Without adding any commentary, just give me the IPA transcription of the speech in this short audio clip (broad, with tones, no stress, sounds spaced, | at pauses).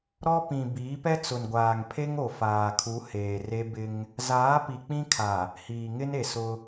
ɾ ɔ˦ p ĩ˨ b iː˨˦ p ɛ˦ t͡s ʊ˨ n ɡʷ aː˨ ŋ pʰ e˦ ŋ o˨ f aː˨ kʰ u˨˦ h eː˨ r e˦ b ɪ˦ ŋ | z aː˨˦ p i˨ k͡p ĩ˦ kʰ a˨ | h iː˨ ŋ ɪ˦ n e˨ s ʊ˦